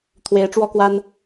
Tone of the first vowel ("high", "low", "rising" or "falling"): rising